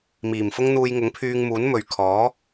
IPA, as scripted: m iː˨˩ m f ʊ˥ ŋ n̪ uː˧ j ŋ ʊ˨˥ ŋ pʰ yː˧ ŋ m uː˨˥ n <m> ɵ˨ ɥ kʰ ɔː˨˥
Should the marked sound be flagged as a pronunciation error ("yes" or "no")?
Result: no